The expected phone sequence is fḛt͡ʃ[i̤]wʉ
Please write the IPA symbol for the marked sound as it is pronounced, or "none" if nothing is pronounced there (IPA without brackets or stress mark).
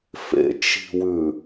i̤